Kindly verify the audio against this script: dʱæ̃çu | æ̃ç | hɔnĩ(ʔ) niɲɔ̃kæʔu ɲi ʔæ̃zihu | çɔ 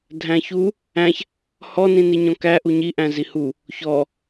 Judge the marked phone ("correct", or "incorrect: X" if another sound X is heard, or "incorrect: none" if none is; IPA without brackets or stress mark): incorrect: none